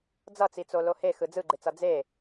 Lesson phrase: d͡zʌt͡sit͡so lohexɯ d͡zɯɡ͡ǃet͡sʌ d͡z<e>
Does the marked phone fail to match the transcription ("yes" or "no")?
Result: no